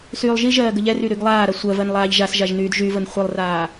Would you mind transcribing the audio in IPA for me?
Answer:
syːlˠʒiʒɜː ɡəʎɛry ɾyɡlˠaːɾa sʷɜvɜn lˠaːʎʒasʒaʒ nyːdʒyvən χʷilˠraː

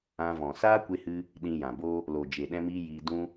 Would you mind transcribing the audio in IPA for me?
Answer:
ã˧vɔ̃˨ saː˦kʷe˧hɨ˧ | ɗĩ˧jã˨bo˦ | lo˨d͡ʒe˨ɗɛ̃˧miː˧ jiː˧dũ˦

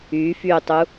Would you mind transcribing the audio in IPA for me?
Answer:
yːfyːtˤu

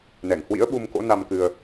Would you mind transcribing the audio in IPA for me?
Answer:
nɛ˧˩ŋhwḭ˧˥ə̯ ɓu˧mko̰˧˥ na˧mkɨ˧ə̯

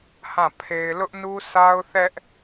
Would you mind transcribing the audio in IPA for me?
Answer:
hã˦˨ pʰe˦ɪ̯ lʊ˦ʔnu˦sa˦ʊ̯θɛ˦ʔ

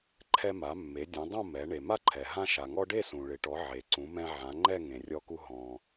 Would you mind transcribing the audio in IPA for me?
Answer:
ǃʰɛ˧ma˩˧mːe˩˧ dʲẽ˩˧ dˤõ˥˧mɛ˩˧ ɳe˩ma˥˧ǃʰɛ˩ ɦã˧ʃa˩ŋɔ˧ ɖe˥˧sũ˩ɭɪ˩˧ʈɔ˩˧ ʕe˩˧ǀũ˩˧mɛ̃˧ ʕã˩˧ŋ͡ǃɛ˥˧ ŋẽ˩rʲɔ˧ku˧ ɦɔ̃˩

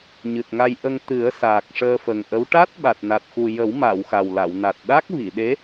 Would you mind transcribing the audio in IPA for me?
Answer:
ɲɨ˨˩t̚ŋa˧jʔə˧ŋ t̪ɨ˨˩˦ə̯ saː˨˩k̚ʂəː˧fə˨˩ŋʔə˧˥w ʈa˦˥t̚ɓa˨˩t̚na˨˩t̚xu˨˩ jə˨˩˦wma˨˩˨w xa˨˩wla˨˩˨wna˨˩t̚ ɗa˦˥k̚ vi˨˩˨ɗe˧˥

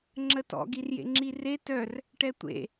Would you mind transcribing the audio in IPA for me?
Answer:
ŋ͡ǁətɔ̰ɡ irjḛŋ͡ǁire tœr | ʈɛtʷḛ

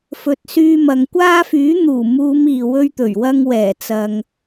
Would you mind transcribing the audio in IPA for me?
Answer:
fɵ˨t̚syː˧mɐ˨ŋkʷaː˥ fyː˨˥n̪uː˨˩muː˨˧m iː˨wɵ˥ɥt̪ɵ˨˩ɥwɐ˥ŋ wɛː˨˩t͡sɐ˨ŋ

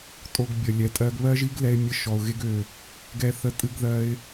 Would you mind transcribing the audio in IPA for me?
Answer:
tʼo˧ɡbʲə˨lʲɛ˨tʼɜ˧ɡ βɜ˦ʒi˦ɡlɛ˧ɪ̯ mʲə˧ʃɔ˨ʊ̯ ɣe˧ɡø˨ | ɡɛ˧ θə˧tʼɨ˧ɡðɜ˧ɪ̯

